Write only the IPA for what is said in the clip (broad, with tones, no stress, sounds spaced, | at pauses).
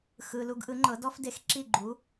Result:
x ɯ˩ l u˧ ɡ ʔ ɯ˩˥ ŋ͡ǃ ɤ˩˥ d ɔ˥ f d e˧ x ǁ i˥˩ ɡ͡ǃ u˩˥